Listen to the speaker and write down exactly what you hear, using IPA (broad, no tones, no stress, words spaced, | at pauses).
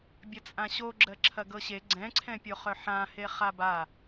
bʲɐt͡sʼãɕoɡ͡ǁɜ ǁʰɐɡɤɕe ɡ͡ǀɛ̃ǀʰɛ̃pʲoχœ ħãhe χaba